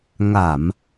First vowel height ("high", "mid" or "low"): low